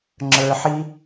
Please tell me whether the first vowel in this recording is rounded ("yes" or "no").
no